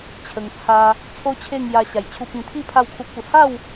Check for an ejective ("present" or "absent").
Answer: absent